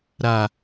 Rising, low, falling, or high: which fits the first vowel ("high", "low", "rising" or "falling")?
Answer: low